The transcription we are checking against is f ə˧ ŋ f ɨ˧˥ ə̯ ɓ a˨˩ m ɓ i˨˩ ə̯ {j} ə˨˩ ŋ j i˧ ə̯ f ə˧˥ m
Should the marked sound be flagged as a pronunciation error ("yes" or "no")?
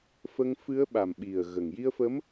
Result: yes